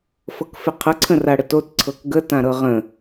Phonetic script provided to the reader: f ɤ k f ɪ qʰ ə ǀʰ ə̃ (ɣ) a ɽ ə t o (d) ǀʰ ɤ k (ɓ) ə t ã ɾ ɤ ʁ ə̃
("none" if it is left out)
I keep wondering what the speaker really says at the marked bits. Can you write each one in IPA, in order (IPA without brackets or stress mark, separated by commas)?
r, t, ɡ